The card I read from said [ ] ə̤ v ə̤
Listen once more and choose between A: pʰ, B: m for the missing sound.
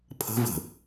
A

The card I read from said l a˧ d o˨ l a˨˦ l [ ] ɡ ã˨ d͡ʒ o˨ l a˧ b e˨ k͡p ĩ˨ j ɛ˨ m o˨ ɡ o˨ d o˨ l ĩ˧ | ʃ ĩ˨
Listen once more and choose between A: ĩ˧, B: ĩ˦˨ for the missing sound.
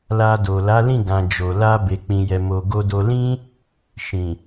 B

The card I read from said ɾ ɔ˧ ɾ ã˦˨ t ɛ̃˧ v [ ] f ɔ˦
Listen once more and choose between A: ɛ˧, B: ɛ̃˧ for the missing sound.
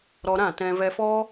A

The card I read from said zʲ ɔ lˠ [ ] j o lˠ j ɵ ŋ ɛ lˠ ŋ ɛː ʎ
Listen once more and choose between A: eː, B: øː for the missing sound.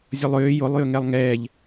B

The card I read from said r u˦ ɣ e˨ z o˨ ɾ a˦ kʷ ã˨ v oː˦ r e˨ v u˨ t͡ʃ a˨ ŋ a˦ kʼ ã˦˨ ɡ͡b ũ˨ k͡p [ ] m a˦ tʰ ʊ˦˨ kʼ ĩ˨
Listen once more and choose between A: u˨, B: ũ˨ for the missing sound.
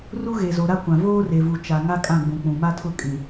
B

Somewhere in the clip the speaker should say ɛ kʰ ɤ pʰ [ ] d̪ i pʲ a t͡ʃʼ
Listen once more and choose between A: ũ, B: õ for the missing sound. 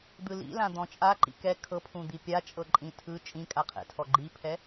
A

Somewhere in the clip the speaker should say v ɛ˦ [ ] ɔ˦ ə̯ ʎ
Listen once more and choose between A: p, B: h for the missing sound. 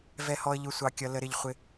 B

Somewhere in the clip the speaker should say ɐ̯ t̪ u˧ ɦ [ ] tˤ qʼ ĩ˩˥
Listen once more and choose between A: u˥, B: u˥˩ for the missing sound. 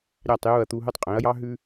B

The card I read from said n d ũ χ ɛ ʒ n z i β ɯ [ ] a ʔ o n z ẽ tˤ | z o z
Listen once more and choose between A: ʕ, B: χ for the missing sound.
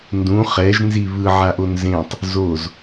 A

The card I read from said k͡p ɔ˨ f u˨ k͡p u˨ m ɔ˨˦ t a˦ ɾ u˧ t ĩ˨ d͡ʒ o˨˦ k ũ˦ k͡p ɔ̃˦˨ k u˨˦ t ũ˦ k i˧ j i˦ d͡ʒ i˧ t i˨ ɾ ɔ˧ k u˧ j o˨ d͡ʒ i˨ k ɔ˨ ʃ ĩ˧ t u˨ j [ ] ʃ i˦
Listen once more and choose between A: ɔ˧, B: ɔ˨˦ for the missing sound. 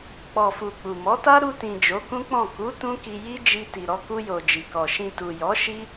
B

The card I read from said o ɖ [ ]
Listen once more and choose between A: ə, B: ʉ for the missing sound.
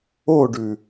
B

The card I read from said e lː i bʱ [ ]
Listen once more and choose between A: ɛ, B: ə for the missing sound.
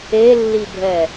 A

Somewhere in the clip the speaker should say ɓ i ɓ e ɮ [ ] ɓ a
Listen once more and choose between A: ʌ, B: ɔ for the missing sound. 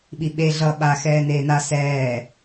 A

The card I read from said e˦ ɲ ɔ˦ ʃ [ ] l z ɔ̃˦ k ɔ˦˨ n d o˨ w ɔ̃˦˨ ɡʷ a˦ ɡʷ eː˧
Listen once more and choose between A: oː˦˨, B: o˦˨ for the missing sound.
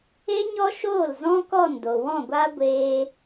A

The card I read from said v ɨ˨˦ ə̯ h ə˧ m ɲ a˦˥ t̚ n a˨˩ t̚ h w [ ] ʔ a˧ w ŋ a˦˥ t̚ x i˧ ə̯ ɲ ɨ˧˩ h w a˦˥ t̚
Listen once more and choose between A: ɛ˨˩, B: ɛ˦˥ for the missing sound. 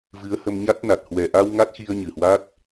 A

